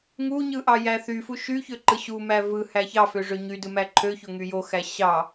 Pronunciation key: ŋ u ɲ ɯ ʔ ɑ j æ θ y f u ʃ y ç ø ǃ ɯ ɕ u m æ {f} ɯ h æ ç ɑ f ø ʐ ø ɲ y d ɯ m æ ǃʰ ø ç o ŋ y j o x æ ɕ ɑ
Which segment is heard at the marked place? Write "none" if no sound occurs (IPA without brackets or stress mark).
v